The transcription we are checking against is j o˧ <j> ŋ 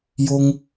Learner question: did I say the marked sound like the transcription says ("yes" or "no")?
no